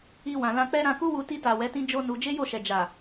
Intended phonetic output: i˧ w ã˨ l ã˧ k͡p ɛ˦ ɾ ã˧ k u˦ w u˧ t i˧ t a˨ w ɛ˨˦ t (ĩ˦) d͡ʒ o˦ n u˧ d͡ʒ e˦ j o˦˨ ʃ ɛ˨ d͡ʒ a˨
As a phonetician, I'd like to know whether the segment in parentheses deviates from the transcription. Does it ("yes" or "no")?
no